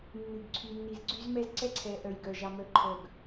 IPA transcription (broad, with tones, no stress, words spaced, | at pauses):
nːʉ˨ɡǀʰy˨nːi˨zɡ͡ǀy˦z mɛ˦zǀɛ˦ǀʰɛ˨ʔœ˨j ɡœ˨ ʒɑ˦mœ˦ǃʰœ˦˨ɡ